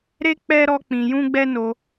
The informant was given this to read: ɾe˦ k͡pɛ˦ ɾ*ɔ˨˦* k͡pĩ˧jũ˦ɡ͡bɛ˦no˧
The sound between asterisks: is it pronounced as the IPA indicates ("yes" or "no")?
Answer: no